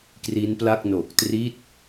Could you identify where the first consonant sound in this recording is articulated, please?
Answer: velar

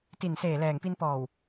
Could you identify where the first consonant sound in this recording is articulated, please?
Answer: alveolar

